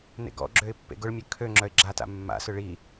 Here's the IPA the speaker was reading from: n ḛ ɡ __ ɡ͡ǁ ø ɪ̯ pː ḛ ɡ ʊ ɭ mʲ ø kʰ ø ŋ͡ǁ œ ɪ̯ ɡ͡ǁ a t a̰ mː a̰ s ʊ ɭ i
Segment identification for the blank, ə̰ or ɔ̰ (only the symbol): ɔ̰